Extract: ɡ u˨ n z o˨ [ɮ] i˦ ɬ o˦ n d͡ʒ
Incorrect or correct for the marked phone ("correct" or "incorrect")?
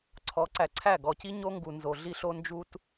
correct